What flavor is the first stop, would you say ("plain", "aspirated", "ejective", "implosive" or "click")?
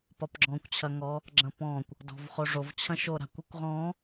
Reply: plain